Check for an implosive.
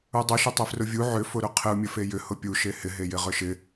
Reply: absent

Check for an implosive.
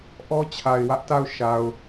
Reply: absent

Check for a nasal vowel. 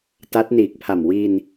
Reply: absent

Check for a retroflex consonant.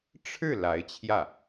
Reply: present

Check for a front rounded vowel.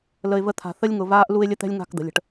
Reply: absent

